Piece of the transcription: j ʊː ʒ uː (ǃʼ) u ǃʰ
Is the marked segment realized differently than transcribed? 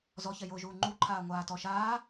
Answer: yes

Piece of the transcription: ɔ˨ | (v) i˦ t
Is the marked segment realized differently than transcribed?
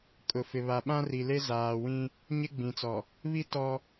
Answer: yes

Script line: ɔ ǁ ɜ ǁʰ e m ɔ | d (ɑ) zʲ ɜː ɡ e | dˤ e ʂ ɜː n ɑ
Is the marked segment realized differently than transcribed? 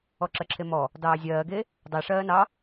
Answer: yes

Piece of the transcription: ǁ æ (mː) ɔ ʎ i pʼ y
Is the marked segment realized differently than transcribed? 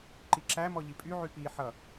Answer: yes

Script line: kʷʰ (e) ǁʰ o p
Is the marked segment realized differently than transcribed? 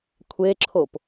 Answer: no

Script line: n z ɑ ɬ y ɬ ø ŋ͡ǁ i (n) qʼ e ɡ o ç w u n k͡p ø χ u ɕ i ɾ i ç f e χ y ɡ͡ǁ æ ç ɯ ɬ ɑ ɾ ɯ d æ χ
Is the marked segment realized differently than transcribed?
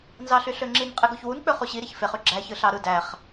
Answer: no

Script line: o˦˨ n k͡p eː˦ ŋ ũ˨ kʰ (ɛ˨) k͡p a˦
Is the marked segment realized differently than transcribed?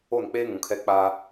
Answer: yes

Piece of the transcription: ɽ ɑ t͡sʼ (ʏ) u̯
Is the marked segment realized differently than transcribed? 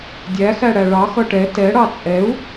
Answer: yes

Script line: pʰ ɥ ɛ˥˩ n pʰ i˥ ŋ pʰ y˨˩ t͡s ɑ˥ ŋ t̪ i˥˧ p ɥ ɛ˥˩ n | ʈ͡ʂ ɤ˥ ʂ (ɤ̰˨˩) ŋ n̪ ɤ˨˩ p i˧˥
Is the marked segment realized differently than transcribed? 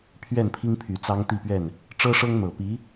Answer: yes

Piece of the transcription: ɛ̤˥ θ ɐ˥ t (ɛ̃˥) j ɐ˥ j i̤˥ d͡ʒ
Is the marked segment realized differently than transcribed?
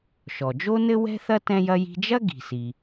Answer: no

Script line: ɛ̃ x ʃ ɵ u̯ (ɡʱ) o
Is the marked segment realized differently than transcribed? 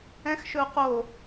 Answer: yes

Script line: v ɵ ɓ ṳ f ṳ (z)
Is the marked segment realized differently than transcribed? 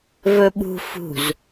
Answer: no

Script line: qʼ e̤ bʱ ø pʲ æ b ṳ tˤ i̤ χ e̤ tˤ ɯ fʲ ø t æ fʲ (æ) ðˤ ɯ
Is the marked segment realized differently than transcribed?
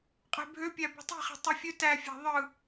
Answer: yes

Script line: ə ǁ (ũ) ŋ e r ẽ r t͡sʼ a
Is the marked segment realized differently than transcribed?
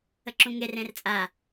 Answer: no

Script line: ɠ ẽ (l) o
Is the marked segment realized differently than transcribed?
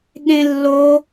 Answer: yes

